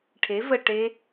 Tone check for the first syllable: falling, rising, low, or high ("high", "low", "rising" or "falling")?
rising